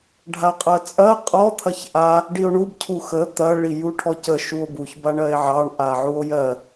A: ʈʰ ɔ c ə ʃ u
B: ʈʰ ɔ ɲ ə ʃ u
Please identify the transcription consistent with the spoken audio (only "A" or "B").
A